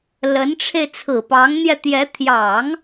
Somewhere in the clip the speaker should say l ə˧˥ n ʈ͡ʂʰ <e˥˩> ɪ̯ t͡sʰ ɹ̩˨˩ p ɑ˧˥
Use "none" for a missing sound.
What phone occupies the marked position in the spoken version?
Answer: e˧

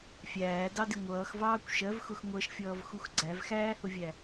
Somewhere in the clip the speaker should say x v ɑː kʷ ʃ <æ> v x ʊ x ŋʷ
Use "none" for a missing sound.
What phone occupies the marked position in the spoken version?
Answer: ɜ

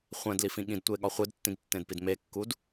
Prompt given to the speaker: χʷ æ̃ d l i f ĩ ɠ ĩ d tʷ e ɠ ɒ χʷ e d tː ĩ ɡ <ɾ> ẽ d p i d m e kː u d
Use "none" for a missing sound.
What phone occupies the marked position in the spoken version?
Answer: tː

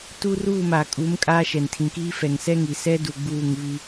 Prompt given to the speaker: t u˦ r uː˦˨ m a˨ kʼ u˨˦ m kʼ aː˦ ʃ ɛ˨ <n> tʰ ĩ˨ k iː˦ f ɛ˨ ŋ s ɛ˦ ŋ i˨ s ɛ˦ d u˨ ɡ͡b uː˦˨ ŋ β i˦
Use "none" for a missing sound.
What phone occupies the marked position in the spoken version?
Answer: n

